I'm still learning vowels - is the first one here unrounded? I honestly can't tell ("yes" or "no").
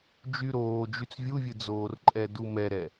no